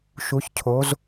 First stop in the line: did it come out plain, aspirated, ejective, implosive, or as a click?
aspirated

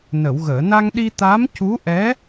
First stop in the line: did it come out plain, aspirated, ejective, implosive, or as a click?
implosive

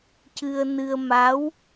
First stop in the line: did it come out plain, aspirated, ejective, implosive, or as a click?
plain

